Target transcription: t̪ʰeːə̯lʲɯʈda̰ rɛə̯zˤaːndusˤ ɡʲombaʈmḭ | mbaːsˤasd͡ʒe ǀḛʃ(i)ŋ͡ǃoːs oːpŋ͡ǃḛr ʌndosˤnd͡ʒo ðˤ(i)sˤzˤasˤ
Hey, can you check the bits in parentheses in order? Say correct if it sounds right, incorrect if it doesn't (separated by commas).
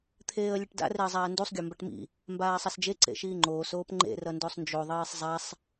incorrect, incorrect